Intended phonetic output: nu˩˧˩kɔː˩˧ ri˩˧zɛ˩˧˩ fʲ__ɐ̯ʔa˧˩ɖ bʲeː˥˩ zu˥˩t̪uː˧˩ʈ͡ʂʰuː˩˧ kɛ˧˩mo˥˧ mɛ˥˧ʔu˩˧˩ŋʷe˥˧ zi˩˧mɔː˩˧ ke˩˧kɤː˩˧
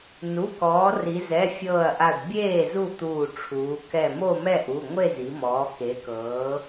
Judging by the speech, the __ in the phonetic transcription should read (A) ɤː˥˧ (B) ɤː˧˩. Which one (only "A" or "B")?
B